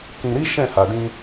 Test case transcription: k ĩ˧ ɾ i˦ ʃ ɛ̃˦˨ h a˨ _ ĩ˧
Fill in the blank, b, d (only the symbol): d